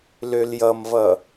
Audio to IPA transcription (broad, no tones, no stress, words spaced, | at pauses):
løljʌmvʌ